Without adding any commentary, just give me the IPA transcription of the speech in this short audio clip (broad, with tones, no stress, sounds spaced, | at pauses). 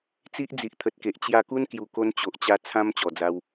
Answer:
t͡s i˦ ʔ d͡z i˨ ʔ t̪ʰ ə˨ t̚ k e˨ ʔ t͡ɕ j a˧ k u˦ n k j u˨˩ k o˧ n t͡ɕ o˨ ʔ t͡ɕ a˧ t͡sʰ ã˧ m t͡ɕ ɔ˨˩ d͡z a˧ w